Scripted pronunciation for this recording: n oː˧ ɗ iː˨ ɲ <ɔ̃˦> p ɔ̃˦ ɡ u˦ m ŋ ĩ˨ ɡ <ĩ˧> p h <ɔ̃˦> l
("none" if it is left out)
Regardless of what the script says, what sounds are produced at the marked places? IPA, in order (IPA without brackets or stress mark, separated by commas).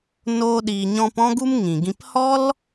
ɔ̃˧, ĩ˧, ɔ˦